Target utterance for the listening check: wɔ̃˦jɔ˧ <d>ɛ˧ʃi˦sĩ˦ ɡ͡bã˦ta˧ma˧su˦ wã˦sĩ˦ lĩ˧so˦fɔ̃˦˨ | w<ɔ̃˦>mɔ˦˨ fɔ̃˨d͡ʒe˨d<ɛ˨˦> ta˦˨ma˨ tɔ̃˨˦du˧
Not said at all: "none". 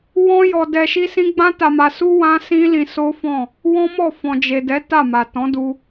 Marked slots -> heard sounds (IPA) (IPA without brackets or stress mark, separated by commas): d, ɔ̃˦, ɛ˨˦